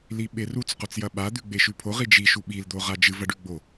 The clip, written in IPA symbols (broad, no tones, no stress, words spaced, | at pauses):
liɓerut͡s qot͡sjɐɓa d̪ʉɡ͡beʃʉpʰoʁ id͡ʒi ʃuɓil d̪oʁad͡ʒɨv ɐɖʉɡ͡bo